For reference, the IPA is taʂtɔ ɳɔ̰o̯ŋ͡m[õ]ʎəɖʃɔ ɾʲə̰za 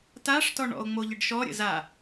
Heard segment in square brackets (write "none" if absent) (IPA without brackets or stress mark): o